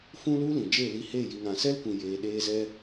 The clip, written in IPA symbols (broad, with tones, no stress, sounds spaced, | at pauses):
f ũ˦ l u˦ l ĩ˨ d͡ʒ e˦˨ l i˧ h e˦˨ j i˨ ŋ ã˨ s ɛ˦ l kʷ ĩ˨ j eː˧ ɗ eː˦ z ɛ˦